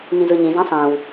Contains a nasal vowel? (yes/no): yes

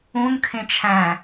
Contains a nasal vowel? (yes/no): yes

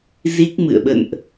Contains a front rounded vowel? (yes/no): no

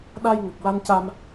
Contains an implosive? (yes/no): yes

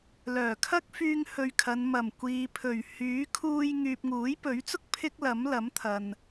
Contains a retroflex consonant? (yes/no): no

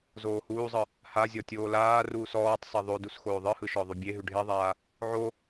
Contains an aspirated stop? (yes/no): no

